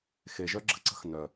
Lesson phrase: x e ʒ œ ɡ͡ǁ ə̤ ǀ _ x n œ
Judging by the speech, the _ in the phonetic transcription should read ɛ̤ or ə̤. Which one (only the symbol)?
ə̤